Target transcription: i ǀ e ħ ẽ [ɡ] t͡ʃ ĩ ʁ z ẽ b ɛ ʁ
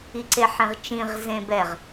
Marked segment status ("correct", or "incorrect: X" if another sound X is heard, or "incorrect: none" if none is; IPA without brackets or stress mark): incorrect: ʁ